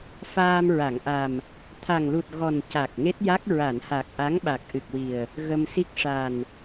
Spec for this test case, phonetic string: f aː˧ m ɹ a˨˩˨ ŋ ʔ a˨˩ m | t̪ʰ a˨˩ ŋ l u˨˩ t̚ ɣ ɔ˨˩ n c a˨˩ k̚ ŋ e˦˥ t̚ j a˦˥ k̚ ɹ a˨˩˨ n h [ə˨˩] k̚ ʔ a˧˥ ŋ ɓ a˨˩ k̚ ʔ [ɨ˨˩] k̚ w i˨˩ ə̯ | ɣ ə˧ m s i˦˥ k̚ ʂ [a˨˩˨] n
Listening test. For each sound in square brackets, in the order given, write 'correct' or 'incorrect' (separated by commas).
incorrect, correct, incorrect